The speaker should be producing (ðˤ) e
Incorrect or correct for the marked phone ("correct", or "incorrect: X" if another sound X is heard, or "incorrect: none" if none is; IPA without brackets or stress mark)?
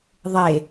correct